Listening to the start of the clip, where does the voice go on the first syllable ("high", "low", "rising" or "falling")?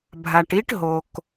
low